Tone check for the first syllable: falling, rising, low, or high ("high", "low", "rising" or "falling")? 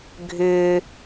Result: low